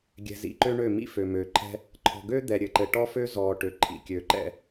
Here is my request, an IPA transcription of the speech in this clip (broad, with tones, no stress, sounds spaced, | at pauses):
ɡʲ ɛ̤˨ z ḭ˨ ǃ ø˦ ɳ ø˦˨ m ḭ˦ f ø˨ m øː˨ ǃʰ ɛ̤˦ | ǃʰ ɔ̤˨ ɡ øː˦ d̪ ɛ˨ ɾʲ ɘː˨ ǃ ɘ˨ ʈ ɔ˦ f øː˦ z ɔː˨ ʈ ø˨ ǃʰ ḭ˨ kʲ ø˨˦ ǃ ɛ̰˦